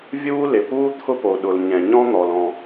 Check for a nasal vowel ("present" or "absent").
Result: present